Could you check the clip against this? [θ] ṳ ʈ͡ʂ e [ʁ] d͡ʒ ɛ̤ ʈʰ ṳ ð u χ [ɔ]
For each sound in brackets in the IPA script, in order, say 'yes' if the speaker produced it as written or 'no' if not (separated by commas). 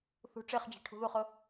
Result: yes, no, no